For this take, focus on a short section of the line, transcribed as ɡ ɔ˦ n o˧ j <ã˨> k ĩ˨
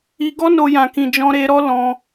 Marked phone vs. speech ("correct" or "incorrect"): correct